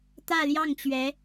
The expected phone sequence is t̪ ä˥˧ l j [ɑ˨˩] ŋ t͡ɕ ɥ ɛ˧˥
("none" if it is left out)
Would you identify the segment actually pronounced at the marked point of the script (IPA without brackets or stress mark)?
ɑ˥˩